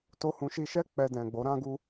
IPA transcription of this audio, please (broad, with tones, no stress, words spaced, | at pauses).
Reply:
to˦hũ˧ ʃi˧ʃɛ˦ k͡pɛ˧ dɛ̃˨ɡ͡bo˨˦ ɾã˦ɡu˦